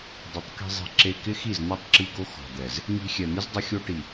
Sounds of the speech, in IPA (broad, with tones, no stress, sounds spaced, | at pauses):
dˤ ɪ˨˦ tˤ k i̤˧ zˤ i̤˧ ǁ e˧ k ɪ˦ x i˦˨ z n̪ ɔ˧ tˤ ǁ i˧ ɡ o˧ x ɔ̤˨ d̪ ɛ˨ z | ŋ i̤˧ xʲ ɛ˨ n̪ ɪ˦ z dˤ ɪ˧ xʲ o˧ ʈ i˨